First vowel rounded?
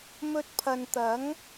yes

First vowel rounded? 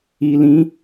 no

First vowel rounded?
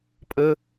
no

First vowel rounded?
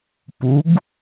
yes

